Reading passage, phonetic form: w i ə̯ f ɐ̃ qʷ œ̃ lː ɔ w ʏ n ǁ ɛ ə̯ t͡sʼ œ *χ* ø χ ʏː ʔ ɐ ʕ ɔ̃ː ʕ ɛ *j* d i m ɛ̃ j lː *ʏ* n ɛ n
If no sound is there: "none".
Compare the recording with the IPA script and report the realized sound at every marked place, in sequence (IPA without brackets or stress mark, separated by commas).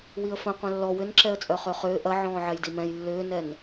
χ, j, ʏː